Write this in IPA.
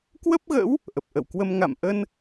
k w ə˦˥ p̚ ɣ ə̰˧˥ w | ʔ ə˨˩ p̚ ʔ ə̰˧˨ w k w ə˧ m ŋ a̰˧˨ m ʔ ə˧ n

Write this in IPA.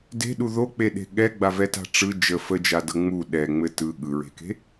d e̤ ɗ u ð o k͡p e ɗ e̤ ɠ ɛ ɡ͡b a v ɛ t a̤ ʈ͡ʂ ɯ d͡ʒ ə f ə d͡ʒ a d ɤ ŋ͡m u ɗ ɛ ŋ͡m ɘ t ɯ ɠ ɯ ɹ e̤ k e̤

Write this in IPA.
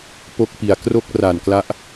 p o˦˥ k̚ p i˨˩ a̯ k r o˥˩ k̚ r a˨˩ n k l a˦˥ ʔ

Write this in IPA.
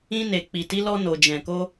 ĩ˧ n e˨ k͡p i˨ t i˨˦ l ɔ˧ n o˨ d͡ʒ ɛ̃˨ k o˧

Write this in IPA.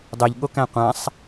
dˤ ɛ ʎ ɠ o k æ̃ qʷ ã sˤ

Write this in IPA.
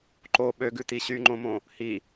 ǃ o ɓ ø ɡ ʉ t i ɕ y ŋ͡ǃ õ m õ | h i

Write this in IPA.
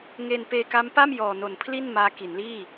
ŋ e˧ n p eː˧ k a˦˥ m p a˥˩ m j ɔː˨˩ n o˨˩ n pʰ l i˥˩ n m aː˦˥ k i˩˦ n l iː˥˩

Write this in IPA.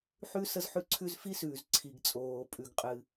ħ ʉ˥ s ə˥ z ħ ʉ˥ ǀʰ ʉ˥ z f i˥ s ʉː˩ z ǀʰ i˩ ɡ t͡sʼ oː˩ pʼ ʉ˩ ɡ qʼ ɨ˩

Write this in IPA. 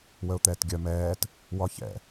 w ə ʊ̯ t̪ ɛː t ɡʲ œ m ɛː t | w ɒ ç ɛ̰

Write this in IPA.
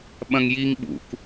ɓ ɐ̃ ŋ j i ŋ ɓ ṵ k

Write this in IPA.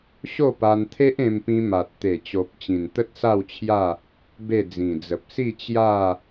ɕ o˥˧ p a˧ n t̪ʰ e˦ ʔ ẽ˧ m p ĩ˧ m a˨ t̚ t̪ e˨˩ t͡ɕ o˨ p̚ t͡ɕ ĩ˨˩ n t̪ ə˦ t̚ s a˥˧ w t͡ɕʰ j a˥˧ | b e˥˧ d͡z ĩ˨˩ d͡z ə˨ p̚ s i˥˧ t͡ɕ j a˥˧

